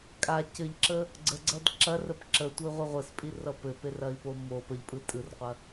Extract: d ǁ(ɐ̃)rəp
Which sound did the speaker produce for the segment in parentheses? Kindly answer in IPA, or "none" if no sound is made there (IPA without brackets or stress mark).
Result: ɐ